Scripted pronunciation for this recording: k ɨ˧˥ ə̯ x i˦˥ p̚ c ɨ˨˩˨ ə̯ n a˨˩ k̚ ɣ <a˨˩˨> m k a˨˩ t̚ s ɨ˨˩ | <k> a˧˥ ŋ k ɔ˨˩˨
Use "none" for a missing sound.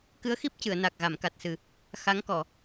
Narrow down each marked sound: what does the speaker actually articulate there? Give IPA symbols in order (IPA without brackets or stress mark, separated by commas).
a˨˩˨, x